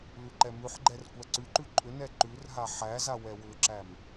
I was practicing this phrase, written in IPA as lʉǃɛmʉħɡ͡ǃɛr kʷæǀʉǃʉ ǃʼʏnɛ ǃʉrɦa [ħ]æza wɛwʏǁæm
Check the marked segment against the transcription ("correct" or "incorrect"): correct